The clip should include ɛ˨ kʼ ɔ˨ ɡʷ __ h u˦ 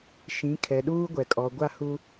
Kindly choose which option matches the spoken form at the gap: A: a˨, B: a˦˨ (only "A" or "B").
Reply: B